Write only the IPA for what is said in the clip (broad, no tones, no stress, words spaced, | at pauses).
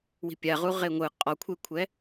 wi̤pʲaʁu ʁeŋʷɯ qʼɔkʷʰekʷʰɛ